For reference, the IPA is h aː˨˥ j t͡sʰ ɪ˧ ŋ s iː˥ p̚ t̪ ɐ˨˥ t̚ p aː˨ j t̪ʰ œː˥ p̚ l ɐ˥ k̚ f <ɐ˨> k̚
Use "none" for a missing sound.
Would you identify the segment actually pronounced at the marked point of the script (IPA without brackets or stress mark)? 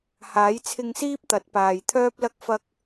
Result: ɐ˥